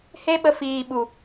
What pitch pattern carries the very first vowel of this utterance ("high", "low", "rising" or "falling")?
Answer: high